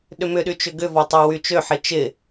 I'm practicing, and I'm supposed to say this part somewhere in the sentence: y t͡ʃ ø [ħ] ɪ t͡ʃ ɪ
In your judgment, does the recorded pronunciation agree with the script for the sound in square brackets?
yes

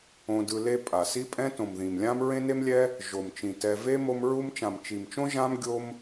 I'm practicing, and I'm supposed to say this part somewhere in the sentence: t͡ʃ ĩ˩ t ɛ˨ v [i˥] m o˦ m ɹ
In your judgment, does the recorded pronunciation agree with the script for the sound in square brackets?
no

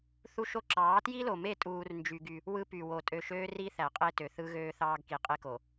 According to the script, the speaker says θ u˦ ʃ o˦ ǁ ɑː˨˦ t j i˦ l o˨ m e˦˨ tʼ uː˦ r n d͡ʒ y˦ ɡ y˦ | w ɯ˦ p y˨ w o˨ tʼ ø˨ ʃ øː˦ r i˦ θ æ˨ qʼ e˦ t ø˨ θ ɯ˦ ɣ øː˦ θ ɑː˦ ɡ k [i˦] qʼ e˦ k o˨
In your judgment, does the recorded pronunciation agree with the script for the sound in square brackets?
no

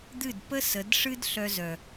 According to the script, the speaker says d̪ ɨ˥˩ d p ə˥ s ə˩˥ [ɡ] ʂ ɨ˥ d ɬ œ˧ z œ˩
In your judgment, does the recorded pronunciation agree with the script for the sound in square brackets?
no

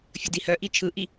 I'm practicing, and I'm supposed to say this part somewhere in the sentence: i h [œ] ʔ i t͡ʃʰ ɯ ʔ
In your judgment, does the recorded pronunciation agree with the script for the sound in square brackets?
yes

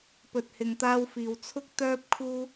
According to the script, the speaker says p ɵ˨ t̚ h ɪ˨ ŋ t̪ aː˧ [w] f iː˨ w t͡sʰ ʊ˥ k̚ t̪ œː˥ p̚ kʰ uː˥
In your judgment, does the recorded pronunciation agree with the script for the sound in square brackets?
yes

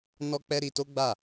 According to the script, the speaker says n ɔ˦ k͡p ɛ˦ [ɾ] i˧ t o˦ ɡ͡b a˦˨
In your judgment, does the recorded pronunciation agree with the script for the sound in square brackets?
yes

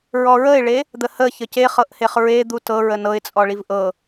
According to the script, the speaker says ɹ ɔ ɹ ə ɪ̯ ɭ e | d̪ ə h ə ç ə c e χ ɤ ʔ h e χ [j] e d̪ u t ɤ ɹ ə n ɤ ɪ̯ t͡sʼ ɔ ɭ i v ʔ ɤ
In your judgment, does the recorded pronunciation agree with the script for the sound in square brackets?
no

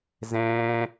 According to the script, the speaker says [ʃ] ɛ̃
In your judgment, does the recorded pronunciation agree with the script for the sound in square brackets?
no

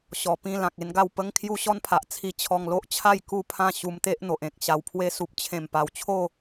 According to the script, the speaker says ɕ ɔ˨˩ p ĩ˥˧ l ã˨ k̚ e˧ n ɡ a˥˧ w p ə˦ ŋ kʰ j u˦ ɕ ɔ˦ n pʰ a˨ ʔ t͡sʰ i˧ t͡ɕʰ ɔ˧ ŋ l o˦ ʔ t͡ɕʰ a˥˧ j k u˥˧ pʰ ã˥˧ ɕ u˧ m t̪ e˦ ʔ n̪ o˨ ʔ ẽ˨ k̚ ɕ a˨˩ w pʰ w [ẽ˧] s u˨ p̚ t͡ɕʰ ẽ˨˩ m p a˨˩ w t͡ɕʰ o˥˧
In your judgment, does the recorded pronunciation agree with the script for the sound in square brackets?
no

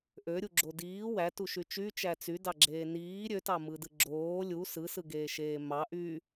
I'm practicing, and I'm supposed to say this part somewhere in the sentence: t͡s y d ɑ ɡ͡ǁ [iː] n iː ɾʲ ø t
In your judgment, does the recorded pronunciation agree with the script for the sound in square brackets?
no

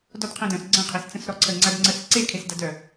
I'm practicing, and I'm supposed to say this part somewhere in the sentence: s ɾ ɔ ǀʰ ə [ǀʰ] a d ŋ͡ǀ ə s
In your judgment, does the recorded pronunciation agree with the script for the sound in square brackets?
no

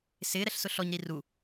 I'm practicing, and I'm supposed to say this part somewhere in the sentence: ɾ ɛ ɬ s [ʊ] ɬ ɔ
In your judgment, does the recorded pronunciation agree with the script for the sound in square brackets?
yes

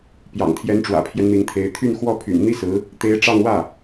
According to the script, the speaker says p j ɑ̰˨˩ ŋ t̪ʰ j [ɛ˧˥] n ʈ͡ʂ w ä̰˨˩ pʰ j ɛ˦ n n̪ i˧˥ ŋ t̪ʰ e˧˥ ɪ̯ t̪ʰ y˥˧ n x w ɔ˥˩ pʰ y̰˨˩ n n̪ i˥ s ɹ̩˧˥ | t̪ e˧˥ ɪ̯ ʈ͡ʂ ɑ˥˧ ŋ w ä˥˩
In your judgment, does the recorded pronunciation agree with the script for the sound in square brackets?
yes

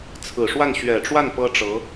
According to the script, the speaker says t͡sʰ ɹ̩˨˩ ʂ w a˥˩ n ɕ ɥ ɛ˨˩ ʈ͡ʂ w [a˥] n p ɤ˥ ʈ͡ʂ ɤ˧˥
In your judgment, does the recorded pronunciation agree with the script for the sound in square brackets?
no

